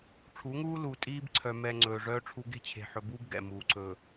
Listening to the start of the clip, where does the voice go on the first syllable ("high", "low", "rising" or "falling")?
rising